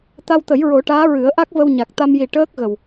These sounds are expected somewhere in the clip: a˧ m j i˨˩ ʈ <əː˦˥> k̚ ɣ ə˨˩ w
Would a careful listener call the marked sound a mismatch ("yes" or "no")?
no